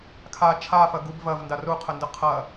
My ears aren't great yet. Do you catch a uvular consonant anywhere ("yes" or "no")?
yes